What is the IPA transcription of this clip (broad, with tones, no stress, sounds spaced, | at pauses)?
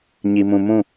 ɲ i˨ m ũ˨ m ũ˦˨